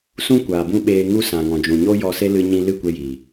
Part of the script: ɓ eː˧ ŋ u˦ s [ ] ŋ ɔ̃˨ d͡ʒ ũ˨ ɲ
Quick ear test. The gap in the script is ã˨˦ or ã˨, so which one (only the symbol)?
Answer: ã˨